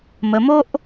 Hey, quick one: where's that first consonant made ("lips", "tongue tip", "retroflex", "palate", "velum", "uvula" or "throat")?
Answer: lips